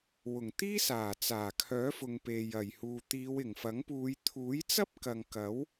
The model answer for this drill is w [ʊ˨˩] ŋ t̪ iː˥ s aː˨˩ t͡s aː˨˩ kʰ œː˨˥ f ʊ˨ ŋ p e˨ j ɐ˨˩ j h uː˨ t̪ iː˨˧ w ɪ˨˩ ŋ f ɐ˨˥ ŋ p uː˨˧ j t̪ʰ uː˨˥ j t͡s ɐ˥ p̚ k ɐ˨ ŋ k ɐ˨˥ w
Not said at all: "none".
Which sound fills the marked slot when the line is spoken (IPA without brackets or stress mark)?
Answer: ʊ˨˩